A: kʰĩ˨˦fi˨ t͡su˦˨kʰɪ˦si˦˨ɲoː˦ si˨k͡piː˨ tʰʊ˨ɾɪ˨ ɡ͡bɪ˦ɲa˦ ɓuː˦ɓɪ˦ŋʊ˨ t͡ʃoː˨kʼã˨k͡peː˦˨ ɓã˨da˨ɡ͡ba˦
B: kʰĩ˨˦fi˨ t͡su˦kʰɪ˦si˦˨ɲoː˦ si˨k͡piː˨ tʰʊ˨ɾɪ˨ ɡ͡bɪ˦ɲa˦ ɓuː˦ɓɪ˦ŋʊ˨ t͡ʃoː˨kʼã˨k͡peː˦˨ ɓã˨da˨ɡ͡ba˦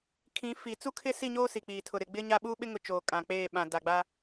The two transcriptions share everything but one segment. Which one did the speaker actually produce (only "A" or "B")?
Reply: B